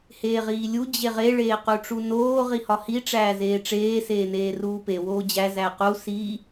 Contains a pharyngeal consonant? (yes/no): no